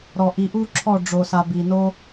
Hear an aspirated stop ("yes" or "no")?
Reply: yes